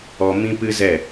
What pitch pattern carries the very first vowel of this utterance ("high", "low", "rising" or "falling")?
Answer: high